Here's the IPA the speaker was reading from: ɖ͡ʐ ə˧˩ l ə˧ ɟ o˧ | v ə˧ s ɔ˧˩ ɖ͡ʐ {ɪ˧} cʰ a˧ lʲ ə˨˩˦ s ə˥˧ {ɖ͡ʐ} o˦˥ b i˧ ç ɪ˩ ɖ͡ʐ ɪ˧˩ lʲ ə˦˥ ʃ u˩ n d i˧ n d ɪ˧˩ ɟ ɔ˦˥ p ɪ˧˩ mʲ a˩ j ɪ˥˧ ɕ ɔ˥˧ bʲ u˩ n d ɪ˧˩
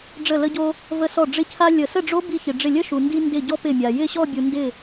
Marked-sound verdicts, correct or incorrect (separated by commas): correct, correct